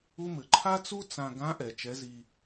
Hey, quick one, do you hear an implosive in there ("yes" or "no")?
no